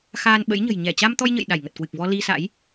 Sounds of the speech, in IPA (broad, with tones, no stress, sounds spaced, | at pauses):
x aː˧ n ɓ ə̰˧˥ j ɲ ə̤˨˩ j ɲ ɛ˧˩ t͡ɕ a˧ m t̪ ɔ˧ j ɲ ə̰˧˨ j ɗ a˧˩ j ŋ ə˨˩ t̚ k w ɨ˨˩ k̚ v ɔ˧ l i˧ s a̰˧˥ j